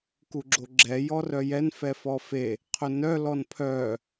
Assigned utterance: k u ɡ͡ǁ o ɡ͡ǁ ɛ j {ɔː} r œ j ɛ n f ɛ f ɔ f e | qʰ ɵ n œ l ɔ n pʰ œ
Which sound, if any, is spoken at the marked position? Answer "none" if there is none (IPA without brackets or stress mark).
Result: ɔ